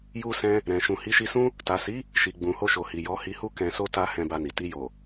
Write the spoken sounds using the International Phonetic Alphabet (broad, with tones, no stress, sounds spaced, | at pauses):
j u˧ s ɛ̃˧ | ɾ ɛ̃˨ ʃ ũ˨ h i˨˦ ʃ i˧ s ũ˦ | t a˨ s i˨˦ | ʃ i˨ ɡ͡b ũ˨ h o˧ ʃ o˨ h i˨ j ɔ˨˦ h i˧ h u˦ k ɛ̃˧ s o˦ t a˧ h ɛ̃˧ b a˧ n i˨ t i˧ j o˨